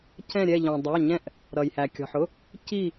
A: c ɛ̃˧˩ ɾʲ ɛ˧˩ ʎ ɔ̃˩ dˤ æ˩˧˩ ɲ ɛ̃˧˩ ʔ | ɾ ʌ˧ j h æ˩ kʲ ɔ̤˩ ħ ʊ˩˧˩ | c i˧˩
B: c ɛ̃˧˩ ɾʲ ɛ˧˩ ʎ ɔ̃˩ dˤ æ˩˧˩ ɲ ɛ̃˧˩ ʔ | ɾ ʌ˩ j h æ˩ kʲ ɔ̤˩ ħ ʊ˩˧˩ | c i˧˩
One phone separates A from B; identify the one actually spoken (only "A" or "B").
B